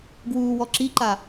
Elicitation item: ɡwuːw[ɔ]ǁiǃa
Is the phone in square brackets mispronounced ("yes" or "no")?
no